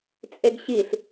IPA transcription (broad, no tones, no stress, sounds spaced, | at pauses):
t͡sʼ e ɡ ɕ i ɬ